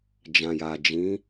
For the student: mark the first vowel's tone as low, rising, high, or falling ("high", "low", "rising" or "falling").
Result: low